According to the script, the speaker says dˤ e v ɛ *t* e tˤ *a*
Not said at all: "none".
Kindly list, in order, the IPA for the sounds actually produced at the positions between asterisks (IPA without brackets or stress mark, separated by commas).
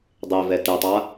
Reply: t, a